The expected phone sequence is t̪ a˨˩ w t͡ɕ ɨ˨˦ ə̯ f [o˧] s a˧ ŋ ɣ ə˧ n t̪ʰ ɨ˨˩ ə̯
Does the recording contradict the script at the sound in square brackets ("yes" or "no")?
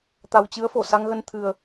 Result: yes